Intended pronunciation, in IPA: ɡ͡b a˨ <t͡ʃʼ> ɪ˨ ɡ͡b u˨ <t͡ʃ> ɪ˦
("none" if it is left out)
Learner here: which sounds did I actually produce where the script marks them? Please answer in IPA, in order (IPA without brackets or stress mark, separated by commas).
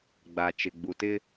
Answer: t͡ʃ, t